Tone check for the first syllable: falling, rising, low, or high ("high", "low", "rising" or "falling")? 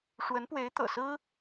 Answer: rising